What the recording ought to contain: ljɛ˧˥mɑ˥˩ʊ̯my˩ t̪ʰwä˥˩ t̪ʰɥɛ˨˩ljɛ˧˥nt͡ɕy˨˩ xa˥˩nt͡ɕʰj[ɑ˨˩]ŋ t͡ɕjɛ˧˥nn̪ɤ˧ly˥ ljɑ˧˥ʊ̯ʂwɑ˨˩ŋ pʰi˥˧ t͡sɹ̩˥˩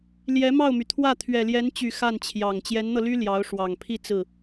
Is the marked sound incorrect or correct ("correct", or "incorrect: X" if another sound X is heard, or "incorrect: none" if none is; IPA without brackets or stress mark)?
correct